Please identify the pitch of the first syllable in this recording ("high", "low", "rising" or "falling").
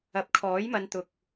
rising